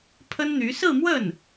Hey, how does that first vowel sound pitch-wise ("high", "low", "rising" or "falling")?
high